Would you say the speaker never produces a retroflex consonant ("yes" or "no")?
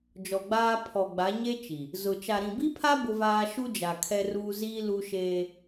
yes